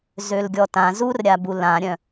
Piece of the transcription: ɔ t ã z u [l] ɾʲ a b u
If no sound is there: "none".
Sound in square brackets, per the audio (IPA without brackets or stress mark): r